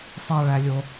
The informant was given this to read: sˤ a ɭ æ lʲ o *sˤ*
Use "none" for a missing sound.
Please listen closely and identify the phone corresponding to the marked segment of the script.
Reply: none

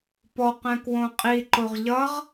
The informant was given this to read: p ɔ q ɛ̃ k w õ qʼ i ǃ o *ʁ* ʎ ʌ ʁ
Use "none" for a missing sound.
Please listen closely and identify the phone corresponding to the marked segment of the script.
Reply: ʁ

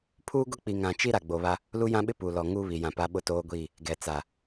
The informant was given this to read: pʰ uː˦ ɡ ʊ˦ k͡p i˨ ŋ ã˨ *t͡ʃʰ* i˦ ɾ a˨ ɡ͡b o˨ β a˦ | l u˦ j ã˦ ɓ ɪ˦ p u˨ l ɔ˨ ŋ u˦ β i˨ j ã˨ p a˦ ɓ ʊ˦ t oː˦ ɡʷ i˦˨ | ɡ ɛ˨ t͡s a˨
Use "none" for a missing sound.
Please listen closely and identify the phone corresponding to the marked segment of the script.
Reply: t͡ʃ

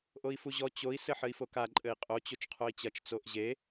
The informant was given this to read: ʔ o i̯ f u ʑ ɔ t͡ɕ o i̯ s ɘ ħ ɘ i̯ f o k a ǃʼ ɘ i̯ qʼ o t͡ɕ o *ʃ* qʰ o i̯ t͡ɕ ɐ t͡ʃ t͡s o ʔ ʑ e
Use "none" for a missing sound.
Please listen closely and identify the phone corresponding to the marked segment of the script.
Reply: t͡ʃ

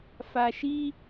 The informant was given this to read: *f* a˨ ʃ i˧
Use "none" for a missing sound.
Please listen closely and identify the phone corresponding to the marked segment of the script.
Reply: f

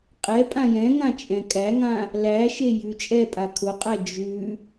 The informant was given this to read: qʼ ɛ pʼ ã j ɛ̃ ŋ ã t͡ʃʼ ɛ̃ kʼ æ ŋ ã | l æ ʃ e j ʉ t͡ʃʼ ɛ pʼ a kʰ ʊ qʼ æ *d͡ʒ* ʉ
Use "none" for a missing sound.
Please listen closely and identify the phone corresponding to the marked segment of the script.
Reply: d͡ʒ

